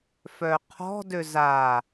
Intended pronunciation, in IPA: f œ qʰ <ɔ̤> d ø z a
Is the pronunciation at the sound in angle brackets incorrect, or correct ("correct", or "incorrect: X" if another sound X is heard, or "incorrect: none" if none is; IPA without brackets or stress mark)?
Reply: correct